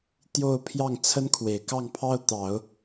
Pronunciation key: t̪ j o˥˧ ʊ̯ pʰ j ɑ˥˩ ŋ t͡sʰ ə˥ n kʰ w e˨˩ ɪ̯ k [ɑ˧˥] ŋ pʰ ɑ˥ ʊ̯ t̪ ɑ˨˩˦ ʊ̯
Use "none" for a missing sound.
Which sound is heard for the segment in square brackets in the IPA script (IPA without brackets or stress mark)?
ɑ˥˩